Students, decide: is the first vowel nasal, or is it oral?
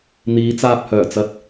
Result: oral